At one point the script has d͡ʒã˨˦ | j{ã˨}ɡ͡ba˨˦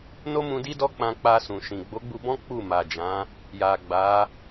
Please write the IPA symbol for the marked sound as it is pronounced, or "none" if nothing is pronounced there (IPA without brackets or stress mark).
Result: a˨